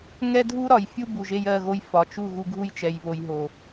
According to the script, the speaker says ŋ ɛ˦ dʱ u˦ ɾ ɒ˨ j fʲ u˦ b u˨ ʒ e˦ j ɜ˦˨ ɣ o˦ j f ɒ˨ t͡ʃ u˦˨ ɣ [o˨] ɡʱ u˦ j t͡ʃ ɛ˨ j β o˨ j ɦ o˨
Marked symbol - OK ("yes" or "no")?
no